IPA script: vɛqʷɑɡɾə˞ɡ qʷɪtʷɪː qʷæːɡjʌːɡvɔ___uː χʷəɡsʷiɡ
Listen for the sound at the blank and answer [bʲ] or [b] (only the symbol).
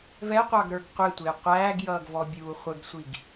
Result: bʲ